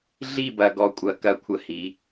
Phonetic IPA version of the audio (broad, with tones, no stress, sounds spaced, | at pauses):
ɮ i˦˨ b ɐ˨ ɡ ɔ˨ kʷʼ ɐ˨ k ɐ˦ kʷʰ ə˦ h i˨˦